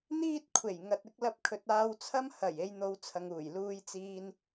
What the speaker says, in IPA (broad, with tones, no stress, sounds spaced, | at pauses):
n̪ iː˥ t̚ kʷʰ e˨˩ j ŋ ɐ˨ t̚ ɪ˨˥ k̚ l ɐ˧ p̚ kʰ ɵ˨ t̚ aː˧ w t͡sʰ ɐ˥ m h ɐ˨˩ j e˨˧ j n̪ o˨˧ w t͡sʰ ɐ˨ ŋ uː˨˩ j l uː˧ j t͡s iː˧ n